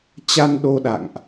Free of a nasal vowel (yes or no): yes